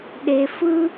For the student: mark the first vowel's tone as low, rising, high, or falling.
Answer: low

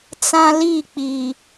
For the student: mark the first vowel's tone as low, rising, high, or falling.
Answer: high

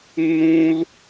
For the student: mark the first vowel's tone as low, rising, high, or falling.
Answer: high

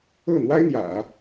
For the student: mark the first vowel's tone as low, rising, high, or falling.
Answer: falling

